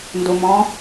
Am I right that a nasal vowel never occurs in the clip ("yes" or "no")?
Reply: no